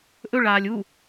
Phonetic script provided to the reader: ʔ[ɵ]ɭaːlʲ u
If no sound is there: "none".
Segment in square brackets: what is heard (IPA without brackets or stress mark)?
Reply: ɵ